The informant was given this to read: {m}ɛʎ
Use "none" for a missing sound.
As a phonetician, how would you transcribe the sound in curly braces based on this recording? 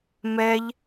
m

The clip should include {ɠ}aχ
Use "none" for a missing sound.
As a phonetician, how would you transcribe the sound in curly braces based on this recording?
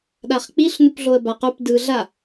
ɗ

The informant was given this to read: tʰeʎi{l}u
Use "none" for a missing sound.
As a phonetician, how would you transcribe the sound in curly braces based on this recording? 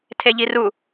r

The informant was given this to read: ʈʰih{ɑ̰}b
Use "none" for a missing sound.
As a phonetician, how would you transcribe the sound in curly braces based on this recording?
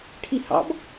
ɑ̰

